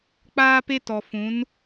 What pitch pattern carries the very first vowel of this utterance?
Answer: high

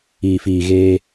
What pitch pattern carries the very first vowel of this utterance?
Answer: low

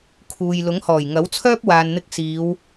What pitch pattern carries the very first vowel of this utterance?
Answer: low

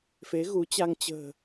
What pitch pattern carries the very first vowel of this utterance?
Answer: rising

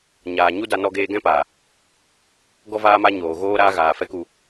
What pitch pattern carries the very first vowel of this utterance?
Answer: low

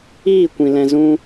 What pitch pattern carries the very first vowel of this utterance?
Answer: falling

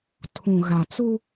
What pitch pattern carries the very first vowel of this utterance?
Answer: low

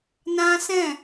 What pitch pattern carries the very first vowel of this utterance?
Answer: high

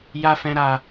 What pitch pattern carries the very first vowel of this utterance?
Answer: low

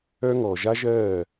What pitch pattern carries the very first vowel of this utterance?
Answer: high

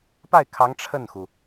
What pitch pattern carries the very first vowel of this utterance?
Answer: falling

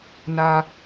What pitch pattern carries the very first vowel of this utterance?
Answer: low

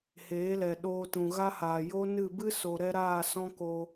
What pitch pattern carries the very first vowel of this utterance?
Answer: rising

